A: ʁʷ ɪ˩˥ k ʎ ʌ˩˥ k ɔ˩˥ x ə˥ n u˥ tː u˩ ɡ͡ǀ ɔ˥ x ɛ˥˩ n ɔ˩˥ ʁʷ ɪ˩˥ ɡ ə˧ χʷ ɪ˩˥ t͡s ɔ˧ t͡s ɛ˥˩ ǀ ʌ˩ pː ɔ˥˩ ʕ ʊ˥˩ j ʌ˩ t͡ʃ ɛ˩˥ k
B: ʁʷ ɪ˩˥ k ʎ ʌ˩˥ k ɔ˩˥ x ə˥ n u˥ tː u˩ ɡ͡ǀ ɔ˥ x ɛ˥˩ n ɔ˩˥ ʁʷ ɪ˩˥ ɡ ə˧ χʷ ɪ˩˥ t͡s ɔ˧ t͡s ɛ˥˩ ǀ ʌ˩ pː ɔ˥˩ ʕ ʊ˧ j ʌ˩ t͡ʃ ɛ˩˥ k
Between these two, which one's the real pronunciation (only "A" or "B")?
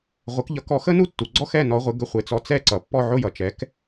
A